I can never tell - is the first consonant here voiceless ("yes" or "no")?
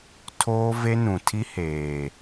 yes